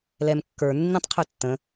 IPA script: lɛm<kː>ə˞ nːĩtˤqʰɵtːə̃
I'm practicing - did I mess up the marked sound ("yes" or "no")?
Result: no